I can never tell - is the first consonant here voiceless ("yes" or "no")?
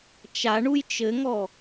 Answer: yes